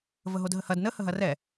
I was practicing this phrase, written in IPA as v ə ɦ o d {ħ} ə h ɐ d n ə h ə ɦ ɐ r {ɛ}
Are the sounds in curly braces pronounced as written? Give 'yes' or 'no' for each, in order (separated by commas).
no, yes